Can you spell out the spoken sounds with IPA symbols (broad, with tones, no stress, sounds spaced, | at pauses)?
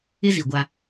ɪ˦ z i˨ ɡʷ a˦